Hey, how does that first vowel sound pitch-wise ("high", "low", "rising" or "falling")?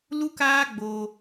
high